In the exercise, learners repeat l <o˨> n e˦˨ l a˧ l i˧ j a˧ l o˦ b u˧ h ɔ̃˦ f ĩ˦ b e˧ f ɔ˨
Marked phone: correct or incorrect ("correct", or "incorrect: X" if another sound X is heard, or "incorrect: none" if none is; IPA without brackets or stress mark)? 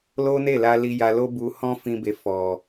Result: incorrect: o˦